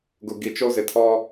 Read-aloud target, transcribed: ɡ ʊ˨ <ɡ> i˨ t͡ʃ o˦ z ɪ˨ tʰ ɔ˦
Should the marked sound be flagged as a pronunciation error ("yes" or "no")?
no